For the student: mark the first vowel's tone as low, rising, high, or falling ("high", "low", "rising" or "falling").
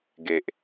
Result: low